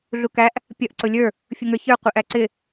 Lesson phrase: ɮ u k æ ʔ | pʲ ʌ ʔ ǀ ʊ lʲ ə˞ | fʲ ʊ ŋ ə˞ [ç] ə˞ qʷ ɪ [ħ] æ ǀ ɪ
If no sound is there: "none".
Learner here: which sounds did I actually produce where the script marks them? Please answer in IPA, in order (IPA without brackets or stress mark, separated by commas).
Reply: ç, ʔ